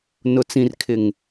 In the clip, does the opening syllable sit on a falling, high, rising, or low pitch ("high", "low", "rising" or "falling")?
low